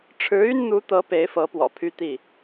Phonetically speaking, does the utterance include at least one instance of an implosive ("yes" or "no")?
no